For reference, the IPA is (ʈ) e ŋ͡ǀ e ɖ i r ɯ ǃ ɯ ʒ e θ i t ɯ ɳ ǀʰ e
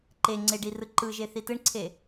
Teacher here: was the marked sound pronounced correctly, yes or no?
no